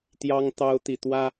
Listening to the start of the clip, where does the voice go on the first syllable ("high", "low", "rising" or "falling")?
high